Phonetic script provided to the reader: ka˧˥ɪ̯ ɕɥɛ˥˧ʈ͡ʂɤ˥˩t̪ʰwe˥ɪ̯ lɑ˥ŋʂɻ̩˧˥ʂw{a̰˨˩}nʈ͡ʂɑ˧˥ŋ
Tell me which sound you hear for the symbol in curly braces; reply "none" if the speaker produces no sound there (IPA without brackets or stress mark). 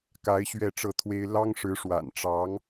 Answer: a̰˨˩